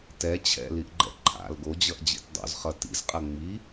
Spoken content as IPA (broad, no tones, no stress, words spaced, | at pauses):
tɛ t͡ɕʰɛ̰liʔɡ͡ǃɛ̰ ǃʰa̰l ɡod͡ʑʌʔd͡ʑḭt dˤo̰zχʌ tḭzqʼɐ ŋ͡mi